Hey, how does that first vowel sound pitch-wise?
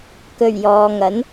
low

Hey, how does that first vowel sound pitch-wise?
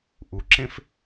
low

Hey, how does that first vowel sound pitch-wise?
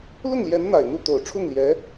falling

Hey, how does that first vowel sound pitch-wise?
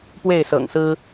falling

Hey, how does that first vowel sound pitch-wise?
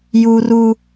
high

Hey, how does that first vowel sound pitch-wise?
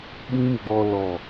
high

